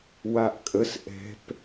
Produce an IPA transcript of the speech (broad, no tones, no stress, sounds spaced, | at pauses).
w a ʔ kʼ ə s ʔ ɛ̤ p